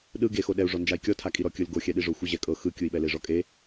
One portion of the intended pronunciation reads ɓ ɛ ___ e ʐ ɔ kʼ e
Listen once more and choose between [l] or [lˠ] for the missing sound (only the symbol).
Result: l